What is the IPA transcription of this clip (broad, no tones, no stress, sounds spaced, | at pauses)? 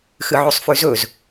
x ɨ ʕ ʉ sˤ f ʉ z ɵ z